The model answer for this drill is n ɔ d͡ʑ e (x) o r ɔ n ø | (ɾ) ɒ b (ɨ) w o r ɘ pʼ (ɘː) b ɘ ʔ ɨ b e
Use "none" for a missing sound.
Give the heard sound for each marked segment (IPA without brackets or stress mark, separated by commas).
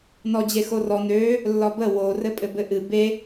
x, lː, ə, ɘ